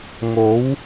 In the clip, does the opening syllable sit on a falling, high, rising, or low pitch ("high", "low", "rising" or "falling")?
rising